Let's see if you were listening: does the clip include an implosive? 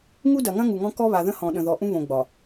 yes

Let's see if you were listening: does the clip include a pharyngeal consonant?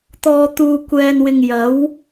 no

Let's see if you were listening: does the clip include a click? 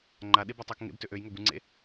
yes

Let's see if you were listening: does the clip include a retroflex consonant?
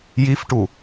yes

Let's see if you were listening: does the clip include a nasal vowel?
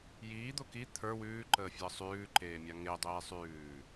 no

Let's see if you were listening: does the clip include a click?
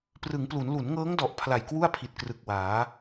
no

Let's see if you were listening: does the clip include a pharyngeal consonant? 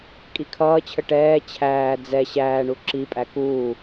no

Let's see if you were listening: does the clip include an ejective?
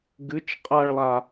yes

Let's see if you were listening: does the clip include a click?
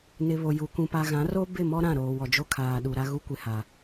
no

